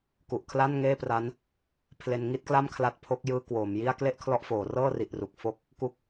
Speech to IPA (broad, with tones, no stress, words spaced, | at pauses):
ku˨˩ʔkʰla˥˩nŋeː˥˩pra˦˥n | pʰle˧nŋi˥˩t̚kla˥˩mkʰla˦˥t̚ pʰo˦˥k̚jɯː˦˥ kwoː˩˦mji˥˩a̯ kle˥˩ʔkʰlɔ˦˥ʔfoː˩˦rɤː˥˩ ri˨˩ʔru˨˩k̚ fo˥˩k̚ | ku˦˥k̚